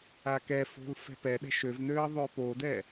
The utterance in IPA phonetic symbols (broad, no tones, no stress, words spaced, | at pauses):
akɛfo̤l fɛ̤pɛɗɛ̤ ʃøvnøə̯ ðˤøpodɛ